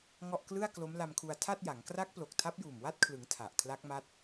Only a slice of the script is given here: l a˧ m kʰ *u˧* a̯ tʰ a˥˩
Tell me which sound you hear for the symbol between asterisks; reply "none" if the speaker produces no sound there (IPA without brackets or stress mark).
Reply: u˧